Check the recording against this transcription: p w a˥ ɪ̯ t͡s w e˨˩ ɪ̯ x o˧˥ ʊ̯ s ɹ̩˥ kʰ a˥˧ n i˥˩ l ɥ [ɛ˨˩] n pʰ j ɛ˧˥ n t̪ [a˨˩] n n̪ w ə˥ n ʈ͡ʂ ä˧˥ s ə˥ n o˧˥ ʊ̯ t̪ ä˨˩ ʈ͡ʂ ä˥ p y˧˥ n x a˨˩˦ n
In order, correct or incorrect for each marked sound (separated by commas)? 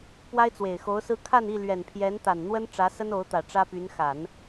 correct, correct